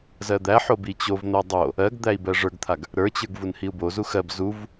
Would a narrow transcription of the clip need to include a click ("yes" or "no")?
no